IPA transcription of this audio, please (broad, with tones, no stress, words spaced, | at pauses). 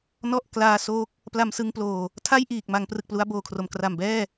nɔ˥˩ʔklaː˧ so˦˥k̚ | pla˧msɯ˧ŋploː˨˩ | tʰa˥˩jʔiː˨˩k̚ma˩˦ŋ prɯ˨˩k̚plu˦˥a̯boː˨˩kʰro˨˩m kra˨˩mbɛː˥˩